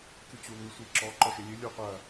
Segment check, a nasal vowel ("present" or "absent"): absent